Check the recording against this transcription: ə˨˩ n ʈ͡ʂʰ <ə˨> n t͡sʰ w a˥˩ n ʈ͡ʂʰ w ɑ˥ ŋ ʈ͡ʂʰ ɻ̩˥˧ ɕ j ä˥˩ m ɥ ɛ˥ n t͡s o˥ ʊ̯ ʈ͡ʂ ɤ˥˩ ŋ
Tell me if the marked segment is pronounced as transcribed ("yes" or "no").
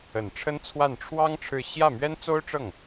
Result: no